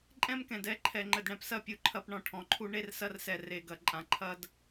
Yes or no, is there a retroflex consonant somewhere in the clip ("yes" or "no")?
yes